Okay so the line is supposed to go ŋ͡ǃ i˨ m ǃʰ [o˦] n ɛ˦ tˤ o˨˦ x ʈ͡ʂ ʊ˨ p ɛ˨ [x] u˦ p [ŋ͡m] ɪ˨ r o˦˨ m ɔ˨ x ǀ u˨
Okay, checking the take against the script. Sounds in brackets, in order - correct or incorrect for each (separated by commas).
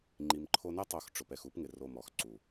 correct, correct, incorrect